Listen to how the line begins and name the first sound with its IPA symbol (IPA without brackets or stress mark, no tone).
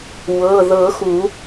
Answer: w